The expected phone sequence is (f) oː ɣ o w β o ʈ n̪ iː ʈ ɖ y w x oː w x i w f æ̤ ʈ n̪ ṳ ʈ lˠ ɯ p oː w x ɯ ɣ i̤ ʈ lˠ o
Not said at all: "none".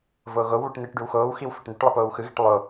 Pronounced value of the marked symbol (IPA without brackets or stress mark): v